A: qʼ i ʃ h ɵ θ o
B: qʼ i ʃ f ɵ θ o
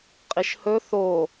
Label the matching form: A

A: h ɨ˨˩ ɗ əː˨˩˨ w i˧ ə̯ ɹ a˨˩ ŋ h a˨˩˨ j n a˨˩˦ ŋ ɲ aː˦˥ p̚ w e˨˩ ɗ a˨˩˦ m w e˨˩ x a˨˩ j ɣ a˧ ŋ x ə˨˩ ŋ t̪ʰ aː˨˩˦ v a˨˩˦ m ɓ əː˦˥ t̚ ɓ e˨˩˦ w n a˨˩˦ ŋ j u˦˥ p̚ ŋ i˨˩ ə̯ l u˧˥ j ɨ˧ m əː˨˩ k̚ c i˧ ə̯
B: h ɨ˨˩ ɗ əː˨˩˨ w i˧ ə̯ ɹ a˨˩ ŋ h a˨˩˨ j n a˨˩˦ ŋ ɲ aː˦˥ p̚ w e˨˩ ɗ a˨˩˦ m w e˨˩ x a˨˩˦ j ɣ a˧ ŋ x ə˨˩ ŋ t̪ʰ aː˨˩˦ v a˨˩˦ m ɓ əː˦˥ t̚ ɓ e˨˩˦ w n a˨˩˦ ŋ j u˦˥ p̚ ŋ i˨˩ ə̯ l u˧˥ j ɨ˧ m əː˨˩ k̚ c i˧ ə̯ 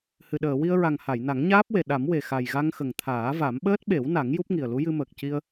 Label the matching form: A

